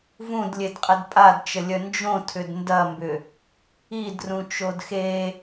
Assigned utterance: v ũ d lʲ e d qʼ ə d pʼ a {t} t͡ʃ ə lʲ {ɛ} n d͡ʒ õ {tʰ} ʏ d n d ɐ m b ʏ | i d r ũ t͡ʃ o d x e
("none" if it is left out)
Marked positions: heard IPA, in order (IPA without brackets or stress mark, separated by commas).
d, œ, tʰ